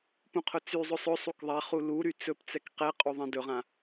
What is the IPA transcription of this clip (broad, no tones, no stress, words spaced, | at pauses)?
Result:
pũqʰʊt͡syzˤɵ sˤɵ sˤukðˤaχu luɾy t͡sɵpt͡sɛk qɛqʼu ðˤɛ̃dɵʁã